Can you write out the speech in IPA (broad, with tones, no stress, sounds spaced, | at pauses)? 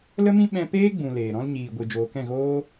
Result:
l ə˦ m ĩ˦ ɓ ɛ̃˦ p eː˦ ɡ͡b ũ˨ l eː˨ ɾ ɔ̃˦ l ɲ iː˨ ɡʷ ɨ˨ d͡ʒ oː˨ k ɛ̃˦˨ ɣ oː˦